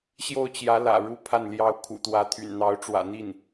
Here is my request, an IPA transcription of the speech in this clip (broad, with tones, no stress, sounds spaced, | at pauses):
ɕ j o˥˩ ʊ̯ t͡ɕ j ä˧˥ l ä̰˨˩ ɻ u˥ pʰ a˥˩ n l j ɑ˥ ʊ̯ kʰ ṵ˨˩ t̪ w ä˧˥ t̪ʰ y̰˨˩ n n̪ ɑ˧˥ ʊ̯ ʈ͡ʂ w ä̰˨˩ n̪ i˥˩ n